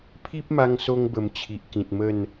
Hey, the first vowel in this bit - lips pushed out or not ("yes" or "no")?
no